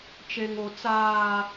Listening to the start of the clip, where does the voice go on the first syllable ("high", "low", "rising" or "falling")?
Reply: high